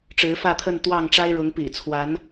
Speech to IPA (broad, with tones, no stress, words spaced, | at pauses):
ʈ͡ʂɻ̩˨˦fä˥˨t̪ʰə˥˨n t̪wɑ˥˨ŋʈ͡ʂa˦ɪ̯ɻʊ˨˦ŋ pḭ˨˩t͡sʰwa˨˦n